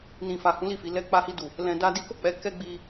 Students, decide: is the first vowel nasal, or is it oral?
nasal